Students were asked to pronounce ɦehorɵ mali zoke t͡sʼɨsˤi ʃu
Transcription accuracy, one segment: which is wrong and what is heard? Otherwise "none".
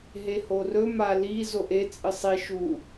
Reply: k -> ʔ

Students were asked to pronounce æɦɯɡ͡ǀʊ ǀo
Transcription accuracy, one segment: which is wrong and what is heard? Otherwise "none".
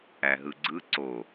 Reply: ʊ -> ɯ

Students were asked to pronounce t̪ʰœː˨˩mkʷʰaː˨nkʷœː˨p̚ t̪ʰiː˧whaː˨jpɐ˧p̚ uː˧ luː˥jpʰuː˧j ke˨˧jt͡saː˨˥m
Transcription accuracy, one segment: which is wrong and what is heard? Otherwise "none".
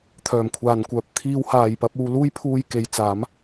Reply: none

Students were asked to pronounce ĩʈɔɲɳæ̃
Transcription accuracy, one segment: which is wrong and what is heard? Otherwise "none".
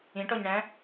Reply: none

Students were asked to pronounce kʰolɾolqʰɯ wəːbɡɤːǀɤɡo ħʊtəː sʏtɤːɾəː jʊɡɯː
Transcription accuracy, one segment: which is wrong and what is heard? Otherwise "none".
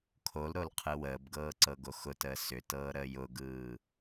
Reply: ħ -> x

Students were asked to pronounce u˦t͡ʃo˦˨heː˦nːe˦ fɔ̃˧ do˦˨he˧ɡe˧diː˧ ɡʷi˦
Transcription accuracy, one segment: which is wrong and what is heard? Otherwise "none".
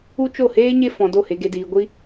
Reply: nː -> ɲ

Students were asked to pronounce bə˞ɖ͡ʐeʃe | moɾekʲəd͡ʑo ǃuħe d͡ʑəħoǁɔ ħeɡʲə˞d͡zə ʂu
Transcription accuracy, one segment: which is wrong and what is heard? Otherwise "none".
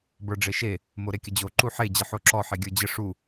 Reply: d͡z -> d͡ʑ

